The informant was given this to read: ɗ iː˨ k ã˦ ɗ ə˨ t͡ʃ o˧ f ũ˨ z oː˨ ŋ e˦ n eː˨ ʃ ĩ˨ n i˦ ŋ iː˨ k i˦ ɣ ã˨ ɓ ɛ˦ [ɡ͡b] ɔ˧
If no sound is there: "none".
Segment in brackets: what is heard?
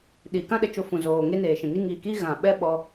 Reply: ɓ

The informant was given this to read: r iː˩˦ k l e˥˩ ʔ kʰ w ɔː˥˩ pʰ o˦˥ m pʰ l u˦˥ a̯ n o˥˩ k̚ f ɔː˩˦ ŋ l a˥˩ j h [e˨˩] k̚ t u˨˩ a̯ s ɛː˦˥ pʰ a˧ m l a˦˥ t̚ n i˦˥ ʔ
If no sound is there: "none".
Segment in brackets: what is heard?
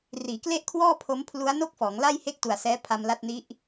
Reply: e˥˩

